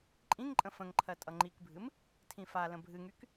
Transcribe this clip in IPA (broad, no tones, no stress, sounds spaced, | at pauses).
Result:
ǃʼ ĩ ŋ ǃʼ ə̃ f ə̃ ŋ ǃʰ ɜ tʼ ʌ ŋ͡ǃ i k bʱ ɨ m | tʰ ĩ f a l ə̃ bʱ ɨ ŋ y k